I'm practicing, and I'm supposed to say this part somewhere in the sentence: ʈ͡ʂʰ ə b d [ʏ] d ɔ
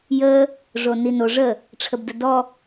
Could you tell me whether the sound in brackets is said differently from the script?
yes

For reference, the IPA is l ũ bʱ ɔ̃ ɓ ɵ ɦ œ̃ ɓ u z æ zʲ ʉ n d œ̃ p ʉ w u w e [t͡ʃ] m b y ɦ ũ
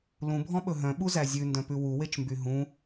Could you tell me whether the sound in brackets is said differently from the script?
no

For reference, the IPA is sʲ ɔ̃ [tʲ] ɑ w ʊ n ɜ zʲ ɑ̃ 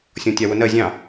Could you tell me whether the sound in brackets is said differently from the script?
no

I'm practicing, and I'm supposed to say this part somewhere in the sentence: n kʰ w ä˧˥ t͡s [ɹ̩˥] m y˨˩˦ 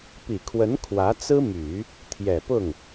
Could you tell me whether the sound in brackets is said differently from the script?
no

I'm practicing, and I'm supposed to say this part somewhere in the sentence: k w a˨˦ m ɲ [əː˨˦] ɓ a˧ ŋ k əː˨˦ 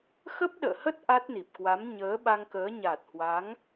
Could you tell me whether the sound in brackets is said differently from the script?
no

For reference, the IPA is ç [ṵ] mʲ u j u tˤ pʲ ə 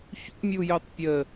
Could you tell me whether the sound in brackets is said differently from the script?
no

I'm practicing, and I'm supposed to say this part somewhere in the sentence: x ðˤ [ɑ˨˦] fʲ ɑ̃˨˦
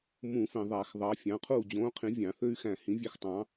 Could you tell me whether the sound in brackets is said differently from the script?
no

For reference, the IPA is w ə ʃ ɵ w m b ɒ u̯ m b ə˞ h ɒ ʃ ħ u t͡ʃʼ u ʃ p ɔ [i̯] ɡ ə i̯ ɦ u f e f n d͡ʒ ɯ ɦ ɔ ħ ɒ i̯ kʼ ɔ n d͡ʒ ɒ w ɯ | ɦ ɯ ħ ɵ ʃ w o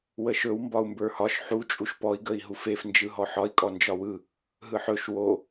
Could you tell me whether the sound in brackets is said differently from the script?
no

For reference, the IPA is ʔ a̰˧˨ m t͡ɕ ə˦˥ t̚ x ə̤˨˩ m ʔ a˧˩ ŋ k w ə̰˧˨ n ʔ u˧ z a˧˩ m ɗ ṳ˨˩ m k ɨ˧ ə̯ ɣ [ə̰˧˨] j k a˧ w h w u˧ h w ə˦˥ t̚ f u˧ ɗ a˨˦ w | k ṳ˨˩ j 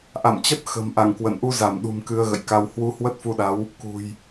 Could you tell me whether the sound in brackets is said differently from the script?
no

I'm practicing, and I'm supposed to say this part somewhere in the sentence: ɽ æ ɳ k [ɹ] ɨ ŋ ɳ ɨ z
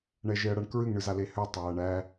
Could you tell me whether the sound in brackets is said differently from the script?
no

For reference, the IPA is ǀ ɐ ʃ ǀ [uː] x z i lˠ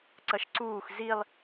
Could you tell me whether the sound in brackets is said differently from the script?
no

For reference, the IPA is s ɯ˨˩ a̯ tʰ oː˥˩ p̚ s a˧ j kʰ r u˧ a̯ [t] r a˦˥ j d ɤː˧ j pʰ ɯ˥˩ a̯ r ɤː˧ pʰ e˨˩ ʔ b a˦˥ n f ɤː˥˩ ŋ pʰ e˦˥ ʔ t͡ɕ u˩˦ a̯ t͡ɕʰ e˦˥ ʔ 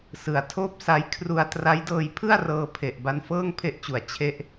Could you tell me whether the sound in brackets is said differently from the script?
no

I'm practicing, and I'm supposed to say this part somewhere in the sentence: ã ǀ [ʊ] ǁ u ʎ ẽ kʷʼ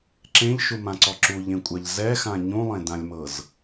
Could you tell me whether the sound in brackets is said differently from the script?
yes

